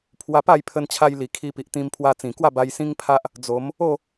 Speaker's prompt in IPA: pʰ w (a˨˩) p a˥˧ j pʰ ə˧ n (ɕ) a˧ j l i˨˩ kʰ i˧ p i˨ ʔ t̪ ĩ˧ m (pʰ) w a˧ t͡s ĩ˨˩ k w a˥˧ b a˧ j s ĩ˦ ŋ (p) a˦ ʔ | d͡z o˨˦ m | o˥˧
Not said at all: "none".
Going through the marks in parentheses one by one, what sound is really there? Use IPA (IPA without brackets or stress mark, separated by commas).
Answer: a˧, t͡ɕʰ, pʰ, pʰ